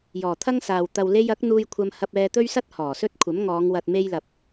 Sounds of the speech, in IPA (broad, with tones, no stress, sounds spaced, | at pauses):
j ɔː˨˩ t̪ʰ ɐ˥ ŋ s aː˨ w t̪ ɐ˨ w l e˧ j ɐ˨˥ k̚ n̪ uː˧ j kʷʰ ɐ˧ m h ɐ˧ p̚ ɛː˧ t̪ ɵ˥ ɥ s ɐ˥ t̚ h ɔː˨˩ s ɵ˥ t̚ kʷʰ ɐ˨˥ m ŋ ɔː˨˧ ŋ w ɐ˨ t̚ m e˧ j l ɐ˨ p̚